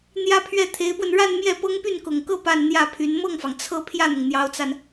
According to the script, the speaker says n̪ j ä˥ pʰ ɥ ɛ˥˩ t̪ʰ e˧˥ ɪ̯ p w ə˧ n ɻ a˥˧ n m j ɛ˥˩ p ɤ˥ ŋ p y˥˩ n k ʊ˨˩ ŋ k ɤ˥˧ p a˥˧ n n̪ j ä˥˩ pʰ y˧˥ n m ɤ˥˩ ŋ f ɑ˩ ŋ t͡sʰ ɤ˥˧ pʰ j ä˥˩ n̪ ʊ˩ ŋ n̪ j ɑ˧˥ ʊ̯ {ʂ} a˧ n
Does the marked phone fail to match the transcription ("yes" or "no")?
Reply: yes